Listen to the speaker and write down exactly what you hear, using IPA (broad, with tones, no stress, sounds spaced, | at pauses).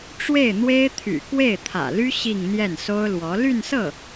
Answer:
ʈ͡ʂ w e˥˩ ɪ̯ n̪ w e˥ ɪ̯ t̪ʰ y̰˨˩ k w e˥˩ ɪ̯ t̪ʰ ä̰˨˩ l y˥ ɕ i˥˧ ŋ n̪ j ɛ˥˩ n s o˥ ʊ̯ l w ɔ˧˥ l y˥˧ n s ɤ˥˩